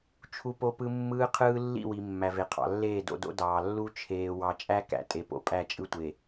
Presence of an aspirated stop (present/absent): present